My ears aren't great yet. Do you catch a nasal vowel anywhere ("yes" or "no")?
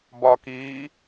no